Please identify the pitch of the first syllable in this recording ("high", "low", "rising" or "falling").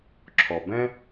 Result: low